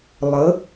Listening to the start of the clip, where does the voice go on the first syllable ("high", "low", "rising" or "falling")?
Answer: rising